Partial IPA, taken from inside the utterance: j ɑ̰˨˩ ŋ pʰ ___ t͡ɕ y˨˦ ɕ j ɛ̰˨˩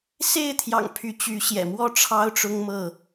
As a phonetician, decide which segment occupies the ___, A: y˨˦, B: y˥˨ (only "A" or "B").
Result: A